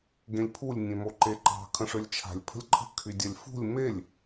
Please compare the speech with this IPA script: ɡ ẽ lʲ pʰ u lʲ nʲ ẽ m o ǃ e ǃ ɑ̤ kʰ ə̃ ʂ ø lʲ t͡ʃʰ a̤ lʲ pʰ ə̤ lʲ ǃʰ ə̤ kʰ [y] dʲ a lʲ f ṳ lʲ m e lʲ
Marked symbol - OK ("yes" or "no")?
yes